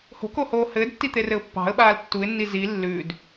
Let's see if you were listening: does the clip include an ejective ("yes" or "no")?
no